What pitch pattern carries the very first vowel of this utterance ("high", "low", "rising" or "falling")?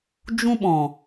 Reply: high